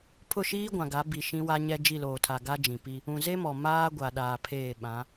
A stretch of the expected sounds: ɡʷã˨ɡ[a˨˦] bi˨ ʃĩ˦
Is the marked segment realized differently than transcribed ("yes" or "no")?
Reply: no